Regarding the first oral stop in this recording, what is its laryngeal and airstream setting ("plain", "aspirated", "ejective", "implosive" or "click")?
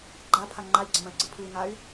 click